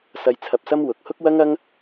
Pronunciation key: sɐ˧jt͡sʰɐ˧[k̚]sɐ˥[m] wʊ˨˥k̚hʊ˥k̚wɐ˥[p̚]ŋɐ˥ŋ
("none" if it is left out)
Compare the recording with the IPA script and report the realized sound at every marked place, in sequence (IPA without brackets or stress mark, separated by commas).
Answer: p̚, m, none